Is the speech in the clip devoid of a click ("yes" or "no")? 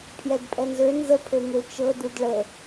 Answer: yes